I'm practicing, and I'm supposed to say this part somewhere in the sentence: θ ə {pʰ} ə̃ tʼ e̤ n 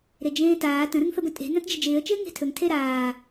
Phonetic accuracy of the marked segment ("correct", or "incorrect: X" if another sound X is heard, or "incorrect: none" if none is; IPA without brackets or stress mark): incorrect: b